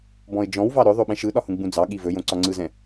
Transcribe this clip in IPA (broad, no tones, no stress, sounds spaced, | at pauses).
b ɔ̃ ɪ̯ d͡ʒ ɔ̃ w v ɑ ɾ ɵ ðˤ o ɓ ɛ̃ ʃ ɯ ɗ ɒ h ũ ɡ͡b ũ d͡z ɑ ɠ i v ɵ j õ ǀ ɒ ŋ͡ǀ ɯ z ɛ̃